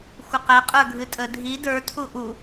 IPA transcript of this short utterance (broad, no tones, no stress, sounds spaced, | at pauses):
xʷ ɐ q æ qʼ ə˞ ɡʱ ɨ tʼ ə dʱ i d ə˞ tʰ u ʔ u